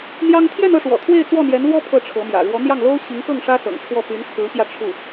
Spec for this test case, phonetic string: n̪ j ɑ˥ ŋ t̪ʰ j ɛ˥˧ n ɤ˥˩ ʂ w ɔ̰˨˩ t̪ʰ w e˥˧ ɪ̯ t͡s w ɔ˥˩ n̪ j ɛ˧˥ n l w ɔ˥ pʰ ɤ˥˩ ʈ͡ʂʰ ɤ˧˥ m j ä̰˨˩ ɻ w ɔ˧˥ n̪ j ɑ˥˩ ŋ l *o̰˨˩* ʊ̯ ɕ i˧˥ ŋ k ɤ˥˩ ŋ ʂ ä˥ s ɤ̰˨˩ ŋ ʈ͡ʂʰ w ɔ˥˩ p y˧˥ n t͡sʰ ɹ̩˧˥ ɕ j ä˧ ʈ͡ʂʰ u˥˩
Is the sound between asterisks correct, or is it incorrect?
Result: incorrect